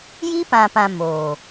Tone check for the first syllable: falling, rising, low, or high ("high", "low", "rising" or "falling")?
high